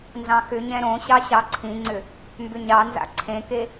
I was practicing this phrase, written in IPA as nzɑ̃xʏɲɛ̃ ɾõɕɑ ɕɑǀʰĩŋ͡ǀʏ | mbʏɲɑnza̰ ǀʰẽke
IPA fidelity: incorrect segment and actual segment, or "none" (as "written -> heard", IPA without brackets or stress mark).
none